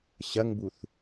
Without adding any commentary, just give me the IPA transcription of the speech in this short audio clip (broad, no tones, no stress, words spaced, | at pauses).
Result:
ɕɐŋbuθ